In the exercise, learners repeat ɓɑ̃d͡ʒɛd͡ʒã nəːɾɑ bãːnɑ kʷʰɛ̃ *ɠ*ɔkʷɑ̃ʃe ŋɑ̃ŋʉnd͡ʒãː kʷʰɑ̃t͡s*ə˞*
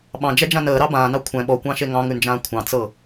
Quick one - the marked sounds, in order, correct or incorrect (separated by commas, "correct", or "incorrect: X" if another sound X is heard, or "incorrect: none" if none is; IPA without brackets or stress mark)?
incorrect: ɓ, incorrect: ɤ